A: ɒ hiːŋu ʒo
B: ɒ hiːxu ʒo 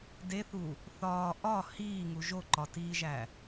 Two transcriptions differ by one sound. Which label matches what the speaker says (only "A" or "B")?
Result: A